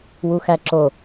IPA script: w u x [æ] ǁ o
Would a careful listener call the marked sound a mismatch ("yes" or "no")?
no